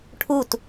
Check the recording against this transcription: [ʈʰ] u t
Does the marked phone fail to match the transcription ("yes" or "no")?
no